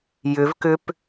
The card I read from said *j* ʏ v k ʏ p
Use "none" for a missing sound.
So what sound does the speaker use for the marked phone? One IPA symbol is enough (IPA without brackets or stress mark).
j